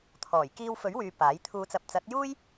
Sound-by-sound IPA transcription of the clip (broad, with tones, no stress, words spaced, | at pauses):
t̪ʰɔː˨˩jkiː˧wfɵ˨˥ɥ wyː˧paː˨˥j t̪ʰuː˨˧t͡sɐ˨p̚t͡sɐ˨˥t̚juː˥j